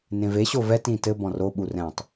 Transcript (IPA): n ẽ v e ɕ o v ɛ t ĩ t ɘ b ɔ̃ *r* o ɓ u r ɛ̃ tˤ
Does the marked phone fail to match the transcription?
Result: no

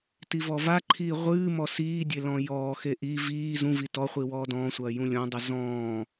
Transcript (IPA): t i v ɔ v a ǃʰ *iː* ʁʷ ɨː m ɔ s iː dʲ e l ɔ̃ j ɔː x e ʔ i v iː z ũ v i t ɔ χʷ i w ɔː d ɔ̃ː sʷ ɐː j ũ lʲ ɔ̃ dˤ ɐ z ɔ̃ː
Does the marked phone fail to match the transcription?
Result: no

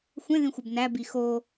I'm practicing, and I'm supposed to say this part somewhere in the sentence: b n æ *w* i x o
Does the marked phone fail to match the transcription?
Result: yes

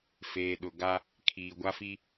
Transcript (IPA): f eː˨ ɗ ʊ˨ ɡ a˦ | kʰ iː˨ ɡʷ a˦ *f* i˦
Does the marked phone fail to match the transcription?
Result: no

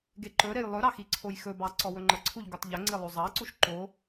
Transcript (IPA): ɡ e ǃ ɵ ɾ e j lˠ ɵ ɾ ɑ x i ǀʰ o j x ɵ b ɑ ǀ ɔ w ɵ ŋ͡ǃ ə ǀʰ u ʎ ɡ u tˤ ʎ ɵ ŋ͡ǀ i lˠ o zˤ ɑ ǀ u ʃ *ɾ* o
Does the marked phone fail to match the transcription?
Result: yes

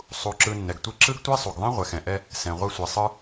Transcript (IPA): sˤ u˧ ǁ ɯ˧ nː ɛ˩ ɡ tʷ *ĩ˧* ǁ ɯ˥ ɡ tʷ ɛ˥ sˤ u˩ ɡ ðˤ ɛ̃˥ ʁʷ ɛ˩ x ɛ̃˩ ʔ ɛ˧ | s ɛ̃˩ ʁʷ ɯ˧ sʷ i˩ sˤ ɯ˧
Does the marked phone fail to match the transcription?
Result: yes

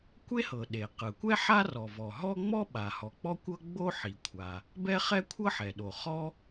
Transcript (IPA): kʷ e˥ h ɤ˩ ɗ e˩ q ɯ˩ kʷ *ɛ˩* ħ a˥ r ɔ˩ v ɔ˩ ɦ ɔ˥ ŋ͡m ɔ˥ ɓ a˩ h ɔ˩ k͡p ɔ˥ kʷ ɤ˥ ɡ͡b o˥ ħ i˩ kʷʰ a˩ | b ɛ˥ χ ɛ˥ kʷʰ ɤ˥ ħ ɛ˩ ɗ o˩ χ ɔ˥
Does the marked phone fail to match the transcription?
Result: yes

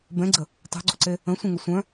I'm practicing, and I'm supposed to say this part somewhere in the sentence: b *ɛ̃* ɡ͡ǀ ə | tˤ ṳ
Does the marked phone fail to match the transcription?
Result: no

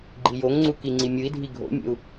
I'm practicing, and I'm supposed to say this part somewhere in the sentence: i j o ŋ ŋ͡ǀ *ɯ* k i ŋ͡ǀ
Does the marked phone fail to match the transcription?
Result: yes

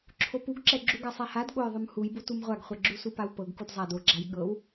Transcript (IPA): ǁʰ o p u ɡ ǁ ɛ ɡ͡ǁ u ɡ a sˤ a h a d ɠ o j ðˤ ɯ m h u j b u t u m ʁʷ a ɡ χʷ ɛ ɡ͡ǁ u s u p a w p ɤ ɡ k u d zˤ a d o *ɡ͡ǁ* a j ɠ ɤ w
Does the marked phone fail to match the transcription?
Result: no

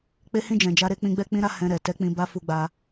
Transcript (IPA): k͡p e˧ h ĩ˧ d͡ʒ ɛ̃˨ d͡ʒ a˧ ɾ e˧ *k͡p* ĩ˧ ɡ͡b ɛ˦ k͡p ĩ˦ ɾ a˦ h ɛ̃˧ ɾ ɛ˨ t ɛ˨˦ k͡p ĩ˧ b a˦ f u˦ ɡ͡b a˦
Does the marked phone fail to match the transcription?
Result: no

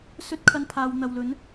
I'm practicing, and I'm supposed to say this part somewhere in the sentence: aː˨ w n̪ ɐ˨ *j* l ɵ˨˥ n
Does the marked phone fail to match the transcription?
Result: yes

